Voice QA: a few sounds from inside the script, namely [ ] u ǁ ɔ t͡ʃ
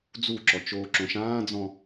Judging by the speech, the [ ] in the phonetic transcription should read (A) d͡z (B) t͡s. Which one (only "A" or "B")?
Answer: A